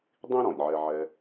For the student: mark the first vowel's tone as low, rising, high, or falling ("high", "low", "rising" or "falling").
high